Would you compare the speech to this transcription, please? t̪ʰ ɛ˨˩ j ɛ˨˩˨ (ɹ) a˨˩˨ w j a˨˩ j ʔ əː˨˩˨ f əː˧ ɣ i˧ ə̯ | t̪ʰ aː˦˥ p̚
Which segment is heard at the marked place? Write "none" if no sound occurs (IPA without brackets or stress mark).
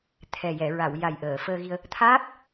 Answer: ɹ